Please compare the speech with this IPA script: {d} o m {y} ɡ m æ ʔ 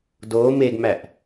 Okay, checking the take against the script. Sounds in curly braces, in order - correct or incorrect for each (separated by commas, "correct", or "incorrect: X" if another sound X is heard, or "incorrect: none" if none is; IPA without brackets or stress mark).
correct, incorrect: e